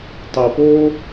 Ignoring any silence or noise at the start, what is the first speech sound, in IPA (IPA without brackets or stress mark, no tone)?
tˤ